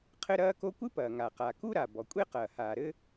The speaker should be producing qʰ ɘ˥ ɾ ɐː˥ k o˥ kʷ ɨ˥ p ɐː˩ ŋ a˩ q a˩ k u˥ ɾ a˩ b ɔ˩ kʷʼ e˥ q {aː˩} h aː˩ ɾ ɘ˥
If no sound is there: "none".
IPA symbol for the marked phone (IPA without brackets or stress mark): ɐː˩